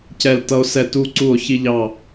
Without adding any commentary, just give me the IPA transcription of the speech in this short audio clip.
c ɛ˦˨ l t ʌ˦ o̯ s ɛ˦˨ t u˦ ǀ u˦˨ o̯ ç i˦ ʎ ɑ˦˨

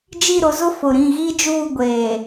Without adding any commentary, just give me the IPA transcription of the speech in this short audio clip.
d͡ʒ i˦˨ ɾ ʊ˨˦ z ʊ˦ f ʊ˨ ɾ ĩ˦˨ ɣ i˦ d͡ʒ uː˦˨ ɡʷ eː˨

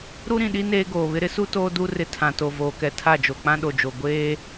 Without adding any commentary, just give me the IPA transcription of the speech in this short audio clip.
ɾ u˦ ɾ ĩ˨ ɗ i˦ n eː˦ ɡ oː˨ β ɪ˦ ɾ ɪ˦ s u˦ t oː˦ d u˦ r ɪ˦ tʰ ã˨ t o˨ v oː˨ k ɛ˨ tʰ a˦˨ d͡ʒ o˨ k͡p ã˦ ɗ o˨ d͡ʒ o˨ ɡʷ eː˦

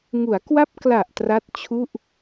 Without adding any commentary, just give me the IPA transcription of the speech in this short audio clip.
ŋ u˩˦ a̯ k w a˦˥ p̚ k l a˨˩ ʔ t r a˦˥ t̚ t͡ɕʰ u˥˩ ʔ

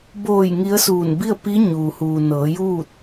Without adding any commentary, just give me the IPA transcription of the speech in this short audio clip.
b oː˧˩ j ŋ i˧˥ ə̯ s uː˧˩ n b i˥˨ ə̯ p i˧˥ ɲ uː˩ h uː˩ n ɤː˩˧ j uː˥˨ t̚

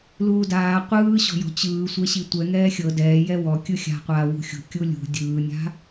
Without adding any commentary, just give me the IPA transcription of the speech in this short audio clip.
l uː d aː qʷ ɯː ɕ ɔ̤ j ɔ̤ t͡ɕ ɯː sʷ ɛ ɕ i tʷ ɛ ŋ ɛː xʲ ɤ d ɛː j ɛ w ɔ kʲ ɯ xʲ a̤ qʷ aː w ṳ xʲ ṳ kʲ u lʲ ṳ dʲ ɯː nʲ a̤

